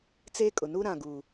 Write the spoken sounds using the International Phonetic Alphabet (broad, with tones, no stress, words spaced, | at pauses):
t͡se˦kʼʊ˨ nu˦ɾã˨ɡu˨